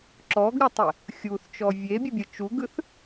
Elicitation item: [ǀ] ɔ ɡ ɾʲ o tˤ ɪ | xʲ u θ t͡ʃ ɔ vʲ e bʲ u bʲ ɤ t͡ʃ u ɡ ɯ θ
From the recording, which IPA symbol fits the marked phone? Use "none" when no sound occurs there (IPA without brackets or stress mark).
ǁ